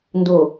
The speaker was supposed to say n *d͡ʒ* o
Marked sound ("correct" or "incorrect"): incorrect